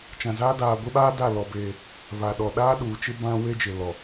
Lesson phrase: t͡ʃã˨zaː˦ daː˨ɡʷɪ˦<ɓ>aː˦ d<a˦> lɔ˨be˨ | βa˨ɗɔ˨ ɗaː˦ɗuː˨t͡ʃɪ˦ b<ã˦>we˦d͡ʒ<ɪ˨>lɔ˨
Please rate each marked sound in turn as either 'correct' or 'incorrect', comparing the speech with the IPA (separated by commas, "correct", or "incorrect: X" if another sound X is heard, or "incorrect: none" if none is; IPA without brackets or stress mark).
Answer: correct, incorrect: a˦˨, correct, correct